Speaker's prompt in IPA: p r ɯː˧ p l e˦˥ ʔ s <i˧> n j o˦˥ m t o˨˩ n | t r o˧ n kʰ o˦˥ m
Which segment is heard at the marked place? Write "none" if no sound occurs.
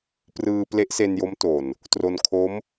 e˧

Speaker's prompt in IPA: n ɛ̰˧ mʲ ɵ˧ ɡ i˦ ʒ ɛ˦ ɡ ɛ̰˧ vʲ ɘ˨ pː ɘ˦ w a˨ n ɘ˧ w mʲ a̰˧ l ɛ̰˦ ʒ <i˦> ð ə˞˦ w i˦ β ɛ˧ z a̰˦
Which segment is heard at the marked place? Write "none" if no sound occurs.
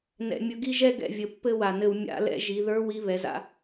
i˧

